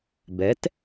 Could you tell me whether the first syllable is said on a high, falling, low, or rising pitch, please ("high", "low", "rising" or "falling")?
rising